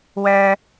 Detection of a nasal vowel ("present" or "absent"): absent